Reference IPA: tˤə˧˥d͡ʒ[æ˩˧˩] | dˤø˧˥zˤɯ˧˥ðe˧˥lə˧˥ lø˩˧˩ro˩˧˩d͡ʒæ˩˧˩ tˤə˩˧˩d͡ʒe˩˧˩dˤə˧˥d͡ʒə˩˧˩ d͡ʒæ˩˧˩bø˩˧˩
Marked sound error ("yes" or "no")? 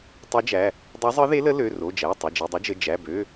no